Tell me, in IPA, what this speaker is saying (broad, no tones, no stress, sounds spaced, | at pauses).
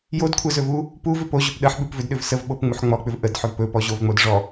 j o d kʷʰ ə z ɵ v u | p u v ʏ p o ʑ ɵ p ɗ ə ħ ɓ ʉ p v ʏ d ɗ ʏ v s ə v ɓ o p ŋ͡m u ħ ŋ͡m ɔ k͡p ʏ v ʔ ə d ħ ɵ v p ɵ p ɔ ʑ o v ŋ͡m o d ʐ ɔ